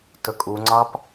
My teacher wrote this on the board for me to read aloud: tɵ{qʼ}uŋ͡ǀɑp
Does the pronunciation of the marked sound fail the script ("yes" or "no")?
yes